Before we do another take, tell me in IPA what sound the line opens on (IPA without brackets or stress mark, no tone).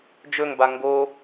d͡ʒ